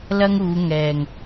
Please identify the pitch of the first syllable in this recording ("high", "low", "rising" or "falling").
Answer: high